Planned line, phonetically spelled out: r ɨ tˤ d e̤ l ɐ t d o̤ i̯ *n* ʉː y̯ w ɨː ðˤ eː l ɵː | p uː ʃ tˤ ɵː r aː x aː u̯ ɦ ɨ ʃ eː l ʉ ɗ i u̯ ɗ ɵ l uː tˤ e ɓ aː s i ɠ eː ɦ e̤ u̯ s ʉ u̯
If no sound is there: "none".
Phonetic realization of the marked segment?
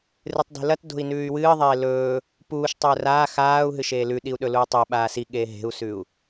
n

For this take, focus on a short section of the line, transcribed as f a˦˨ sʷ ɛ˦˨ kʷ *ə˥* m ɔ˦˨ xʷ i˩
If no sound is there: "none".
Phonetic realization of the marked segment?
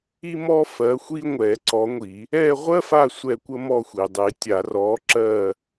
ə˥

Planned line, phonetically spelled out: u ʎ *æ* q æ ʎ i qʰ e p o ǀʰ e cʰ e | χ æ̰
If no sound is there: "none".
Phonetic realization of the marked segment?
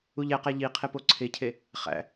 æ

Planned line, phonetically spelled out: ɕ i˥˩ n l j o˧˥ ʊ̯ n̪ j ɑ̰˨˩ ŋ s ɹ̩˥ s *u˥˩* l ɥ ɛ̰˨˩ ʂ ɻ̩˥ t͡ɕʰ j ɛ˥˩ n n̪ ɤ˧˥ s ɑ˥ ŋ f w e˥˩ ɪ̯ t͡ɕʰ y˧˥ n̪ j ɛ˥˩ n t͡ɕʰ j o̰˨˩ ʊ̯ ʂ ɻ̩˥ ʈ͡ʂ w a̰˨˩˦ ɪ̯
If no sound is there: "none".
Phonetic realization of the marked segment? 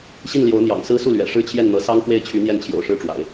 u˥˩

